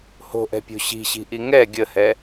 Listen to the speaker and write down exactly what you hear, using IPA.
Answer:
h o̤ ʔ ɛ̤ pʲ o̤ ɕ i̤ ɕ i̤ ʔ i ŋ ɛ ɡʲ ə h ɛ

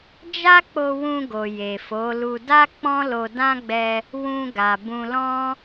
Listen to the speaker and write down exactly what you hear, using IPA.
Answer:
d͡ʒ a˦ k͡p o˧ w ũ˧ ɡ o˨ j e˨ f o˨˦ l u˧ d a˦ k͡p ɔ̃˦ l o˧ d ã˦ ɡ͡b ɛ˧ | w ũ˧ ɡ a˨ b ũ˧ l ɔ̃˦

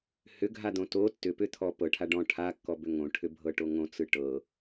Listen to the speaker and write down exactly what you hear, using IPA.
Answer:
h ʏ ɡʱ a d̪ õ t o tː ʏ p ʏ t̪ʰ ɔ p ɤ ʈʰ a ɖ ɔ̃ ʈʰ a kː ɔ b ʏ ŋ õ ʈʰ ʏ bʱ ɤ ʈ o ŋ õ t͡s ɯ ʈ ɤ

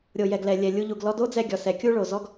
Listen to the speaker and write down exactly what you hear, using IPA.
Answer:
ɾʲ o˨ j ɛ˨ ɡ l ɛ˨ lʲ ɛ˨ lʲ u˧ ʎ u˨ ɡ l ɔ˦ d o˦ d͡z ɛ˧ ɡʲ ɔ˨ s ɛ˨ kʲ u˦ ɭ o˨ z ɔ˦ ɡ

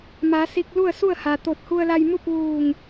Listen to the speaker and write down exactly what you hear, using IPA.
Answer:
m a˩˧ s i˧ k̚ l u˥˨ ə̯ s u˥˨ ə̯ h a˩ t̪ o˧˩ t̚ h u˧ ə̯ l a˧ j m u˥˨ p̚ ʋ uː˧˩ ŋ

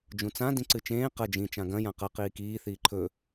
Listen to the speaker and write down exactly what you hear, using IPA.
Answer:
d͡ʒ ũ t͡s ã d ĩ ǀ ɨ t͡ʃ ẽː q ɐ d͡ʒ ĩ t͡ʃ ã ɡ ɐ̃ j ã q ɐ q iː k iː θ iː ǃʰ ɵ

